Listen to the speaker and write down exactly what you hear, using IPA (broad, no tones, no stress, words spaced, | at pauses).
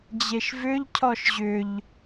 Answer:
d͡ʑeʃvʏʎ cʰɔʃʑʏʎ